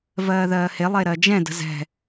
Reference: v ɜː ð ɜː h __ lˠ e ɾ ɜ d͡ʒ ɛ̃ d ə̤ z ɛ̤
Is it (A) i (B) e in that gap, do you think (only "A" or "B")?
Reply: B